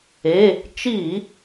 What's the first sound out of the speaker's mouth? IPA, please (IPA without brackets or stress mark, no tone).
e